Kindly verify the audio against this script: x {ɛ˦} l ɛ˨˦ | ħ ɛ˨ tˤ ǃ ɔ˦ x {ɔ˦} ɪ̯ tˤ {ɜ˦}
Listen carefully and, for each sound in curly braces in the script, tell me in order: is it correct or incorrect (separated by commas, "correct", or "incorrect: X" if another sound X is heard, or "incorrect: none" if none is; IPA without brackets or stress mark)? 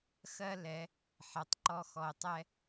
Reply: incorrect: ɜ˦, incorrect: ɔ˨, incorrect: ɛ˦